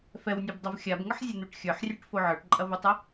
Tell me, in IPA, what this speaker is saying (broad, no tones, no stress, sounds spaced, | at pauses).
f ɛ w nʲ o b dˤ o v xʲ a b ŋ ə ħ zʲ ə n̪ u ʈ xʲ ə˞ ħ rʲ ɛ ʈ f o ʕ ə˞ ʈ ǃʼ ɐ v u tˤ ə